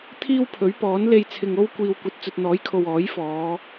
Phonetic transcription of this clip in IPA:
t̪ʰiː˥wpʰɵ˨˥ɥpɔː˨˥n le˧jt͡sʰɪ˨ŋ o˥wkʷiː˨w kʷɐ˨t̚ t͡sɵ˨t̚n̪ɔː˨˥jkʰo˨w ɔː˨˥jfɔː˨˧

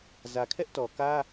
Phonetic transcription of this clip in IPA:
zä˨kʰɛ˦ʔtɔ˨kä˦

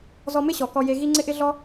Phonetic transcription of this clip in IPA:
zɔ˧mɪ˥ɕɔ˩ kɔ˧je˧ɣi˥ ŋ͡ǀɪ˥ʔɪ˥ɮɔ˥

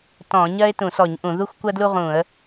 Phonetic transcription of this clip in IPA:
tɔ̃˧˩˧ ɲɜ˥ɪ̯tũ˧˩˧sɔ˧˩˧ɲ ʔũ˧˩˧ðu˥xʷ kʷɜ˥dlu˥ʁũ˧˩˧ə̯

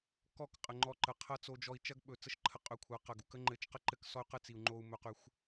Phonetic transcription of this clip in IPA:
kɔ˦˨kqʼə˨ŋ͡ǃɔ˧ǃə˨ qʰɐ˦t͡so˧d͡ʒɔ˧i̯ t͡ʃɐ˦ɡɓɵ˨ t͡sə˦ʃǃʰə˧qʼɵ˨˦ kʷʰɐ˨˦ qɐ˨ɡu˨˦k ə˦ŋ͡ǃɘ˨˦t͡ʃ qə˦ǃɘ˦˨ksɔ˦y̯qɘ˦ t͡si˨u̯ŋ͡ǃo˧u̯mɵ˧qy˧xʷ

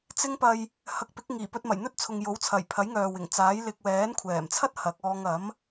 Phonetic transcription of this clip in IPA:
t͡sɪ˧ŋpɐ˨j | hɐ˨k̚pɪ˨˥k̚ ŋiː˨˩pɵ˧t̚mɐ˨˩j n̪ɵ˥t̚t͡sʰʊ˨ŋ jo˨˥wt͡sʰɐ˨˩j pʰɐ˨˥jŋœː˨wɪ˨˩ŋ t͡saː˨˥j lɪ˨k̚wɛː˨˥nkʷʰɛː˨˩mt͡sʰɐ˥t̚ hɐ˨˥k̚ɔː˧ŋ ɐ˨˥m

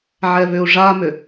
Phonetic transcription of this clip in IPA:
ʕɛβʏu̯ʐamʏ

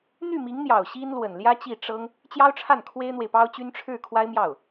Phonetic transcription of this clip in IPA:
n̪y˥˩ mi˧˥ŋn̪jɑ˨˩ʊ̯ ɕi˥nlwə˨˩nljä˥ t͡ɕi˥˩ ʈ͡ʂɤ˥ŋ | t͡ɕjɑ˥ʊ̯ʈ͡ʂʰa˥˩n kʰwe˥ɪ̯n̪we˨ɪ̯pɑ˥ʊ̯t͡ɕy˥n ʈ͡ʂʰɻ̩˥˩ kʰwa˥ɪ̯mjɑ˥˩ʊ̯

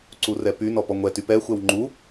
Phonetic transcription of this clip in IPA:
ǀurɛpy nɔpɔŋʷɛ typɛ xʷɛwŋ͡ǃu

